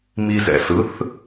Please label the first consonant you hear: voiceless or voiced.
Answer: voiced